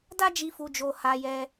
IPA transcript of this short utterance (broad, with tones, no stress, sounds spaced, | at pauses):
d a˦ d͡ʒ i˧ f u˧ d͡ʒ o˧ h a˧ j ɛ˧